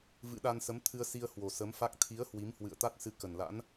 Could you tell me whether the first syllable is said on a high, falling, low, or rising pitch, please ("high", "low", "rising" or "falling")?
rising